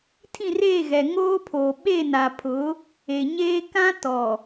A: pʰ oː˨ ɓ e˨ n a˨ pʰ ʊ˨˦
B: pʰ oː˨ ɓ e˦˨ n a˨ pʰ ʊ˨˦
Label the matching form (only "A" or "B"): B